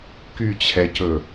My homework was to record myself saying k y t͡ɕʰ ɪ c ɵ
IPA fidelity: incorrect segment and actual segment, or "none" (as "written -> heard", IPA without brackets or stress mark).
ɪ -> ɛ